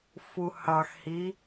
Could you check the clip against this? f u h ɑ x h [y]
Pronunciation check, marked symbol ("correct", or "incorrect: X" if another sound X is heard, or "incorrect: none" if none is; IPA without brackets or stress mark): incorrect: i